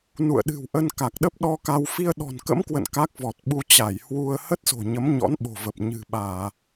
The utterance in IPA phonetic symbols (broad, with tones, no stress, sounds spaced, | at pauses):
n ṵ˧˨ ə̯ ɗ ɨ̤˨˩ w ʔ ə˧ n k a˨˩ k̚ ɗ ə˦˥ p̚ ɗ ɔ˧ k a˧ w f i˧ ə̯ ɗ ɔ̤˨˩ n k ə̰˧˥ m k w ə̰˧˨ n k a˦˥ k̚ v ɔ˨˩ t̚ ɓ u˧ t͡ɕ a˧˩ j h w u˧ ə̯ h ə˦˥ t̚ s o̤˨˩ ɲ ə˨˦ m ɲ ɔ̰˧˥ n ɓ o̤˨˩ v ə˨˩ p̚ ɲ ɨ̤˨˩ ɓ aː˧˩˨